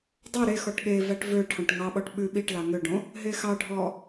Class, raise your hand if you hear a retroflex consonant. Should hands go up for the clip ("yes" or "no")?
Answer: yes